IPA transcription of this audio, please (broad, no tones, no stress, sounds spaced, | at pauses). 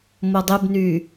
m o dˤ ɪ b n y